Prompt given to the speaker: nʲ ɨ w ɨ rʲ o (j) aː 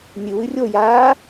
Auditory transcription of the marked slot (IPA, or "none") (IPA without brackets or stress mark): j